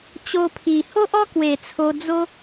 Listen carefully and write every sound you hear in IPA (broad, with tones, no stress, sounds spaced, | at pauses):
t͡ɕ o˧ pʰ i˨˩ h o˦ ʔ ɔ˦ k w e˨˩ t͡sʰ o˧ d͡z o˦